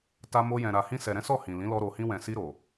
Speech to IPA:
t a˧ m o˧ j ɛ̃˨ ɾ a˨ h ĩ˧ s ɛ˨ ɾ ɛ̃˨˦ s ɔ˦˨ h ĩ˨ l ĩ˨˦ l ɔ˧ ɾ o˨ h ĩ˧ w ɛ̃˨ s i˧ ɾ o˨

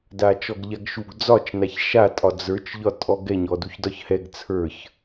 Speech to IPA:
d a t͡ʃ ɔ ɡ ʎ a ɡ ʃ u ɡ d͡z ɒ t͡ʃ n a ç ʃ a tʼ ɒ d͡z ə˞ t͡ʃ ʎ ɒ tʼ ɔ ɡ ɛ ɲ ɔ d u ç d ɒ ç h ɛ ɡ t͡sʰ ə˞ ç

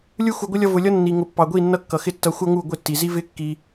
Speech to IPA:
lʲ u˦ x u˧ ɡʷ ɪ˦ lʲ ʌ˦ v ʊ˧ lʲ ʌ˦ nː i˨ ŋ ʊ˨ pː ɑ˨ ɡʷ i˦˨ nː ʌ˦ kː ʌ˨ x ɪ˦ tː ʌ˧ xʷ ʌ˦ ŋ u˦˨ ɡʷ ɪ˦˨ tː i˨ z i˦ v ɪ˦ kː i˧

